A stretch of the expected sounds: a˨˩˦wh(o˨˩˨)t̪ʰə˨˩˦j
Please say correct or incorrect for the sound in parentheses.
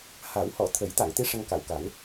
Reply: incorrect: ɔ˨˩˨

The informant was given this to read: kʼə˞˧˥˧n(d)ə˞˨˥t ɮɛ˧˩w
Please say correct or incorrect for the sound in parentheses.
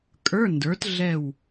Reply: correct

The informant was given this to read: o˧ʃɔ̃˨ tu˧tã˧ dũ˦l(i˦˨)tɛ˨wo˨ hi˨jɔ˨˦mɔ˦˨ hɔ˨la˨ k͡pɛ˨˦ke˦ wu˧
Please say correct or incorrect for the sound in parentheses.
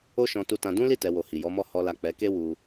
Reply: correct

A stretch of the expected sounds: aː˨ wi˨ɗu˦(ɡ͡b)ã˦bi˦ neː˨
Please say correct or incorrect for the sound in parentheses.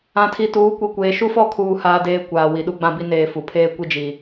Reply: correct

